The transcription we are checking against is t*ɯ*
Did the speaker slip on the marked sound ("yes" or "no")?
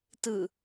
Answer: no